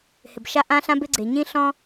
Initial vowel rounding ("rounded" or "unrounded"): unrounded